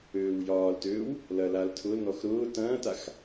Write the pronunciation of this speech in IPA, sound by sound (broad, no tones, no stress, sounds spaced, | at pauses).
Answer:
øː w j ɒː l t øː w | l ɐ l a l tʰ ʊ l n ɔ x ɾ ʊː t ɐ̃ː t a x